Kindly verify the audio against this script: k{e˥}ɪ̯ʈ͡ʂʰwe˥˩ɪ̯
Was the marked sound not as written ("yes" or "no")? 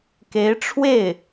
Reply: yes